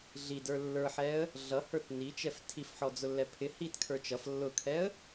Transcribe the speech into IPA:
ɮ i d ə˞ lː ə˞ ħ ɛ ə̯ | ɮ ʌ h ə˞ t n i t͡ʃ ɛ f tʰ i f ħ ɔ d͡z ʊ lː ɛ pʰ ɪ h i t kʰ ə˞ t͡ʃ ʌ f lː ʊ kʰ ɛ ə̯

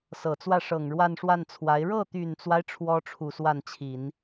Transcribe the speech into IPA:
s ɤ˨˩ t͡s w ä˥˩ ʂ ɤ˨˩ ŋ ɻ w a˥˧ n ʂ w a˥˩ n t͡sʰ w a˧˥ ɪ̯ ɻ ɤ˥˩ t̪ y˨˩ n t͡s w a˦ ɪ̯ ʈ͡ʂʰ w ɔ˥ ʈ͡ʂʰ u˨˩ s w a˥˩ n t͡ɕʰ i˨˩˦ n

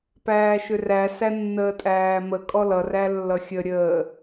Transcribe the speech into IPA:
p æː ʃ ʏ r æ s æ nː əː tʼ æː m ə kʼ ɔ l ʌ r æ lː ʌ xʲ ə ɾʲ əː

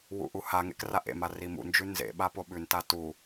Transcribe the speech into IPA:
w ṵ ʔ u h a ŋ ḛ k r a ʔ ḛ m a r i m ṵ n d͡ʒ ʉ n z ḛ ɓ a p o ɓ ʉ n t a t u

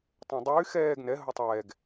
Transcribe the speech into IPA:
tˤ ɛ̃ dˤ yː x ɛː ɡ n ɛ ɦ o tˤ ɛː ɡ

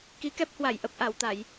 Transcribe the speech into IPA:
k i˨˦ k ɛ˦˥ p̚ h w a˧˩ j ʔ ə˨˩ p̚ ʔ a˧˩ w t̪ a˧˩˨ j

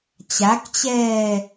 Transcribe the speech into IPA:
t͡ɕ a k t͡ɕ ɛː

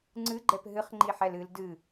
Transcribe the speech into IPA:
ŋ͡ǀ ɨ ɡ͡ǃ ɛ p ɦ ɨ χ ŋ͡ǃ i ħ ɛ l ɨ l d ɨ

